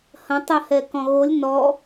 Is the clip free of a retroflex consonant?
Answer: yes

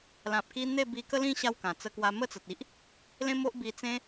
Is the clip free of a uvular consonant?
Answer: yes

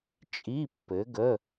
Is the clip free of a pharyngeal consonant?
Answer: yes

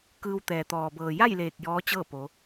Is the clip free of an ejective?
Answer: yes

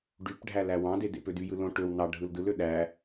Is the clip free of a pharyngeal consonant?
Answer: yes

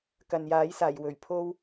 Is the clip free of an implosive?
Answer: yes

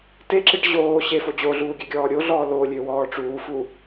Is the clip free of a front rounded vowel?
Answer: no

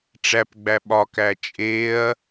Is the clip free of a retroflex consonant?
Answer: no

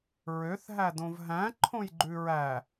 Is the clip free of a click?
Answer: no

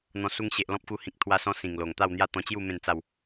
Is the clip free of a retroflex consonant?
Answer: yes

